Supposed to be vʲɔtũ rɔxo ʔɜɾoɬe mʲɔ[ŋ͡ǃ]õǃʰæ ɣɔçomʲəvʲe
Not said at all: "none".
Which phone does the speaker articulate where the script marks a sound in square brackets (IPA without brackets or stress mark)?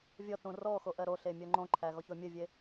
ŋ͡ǃ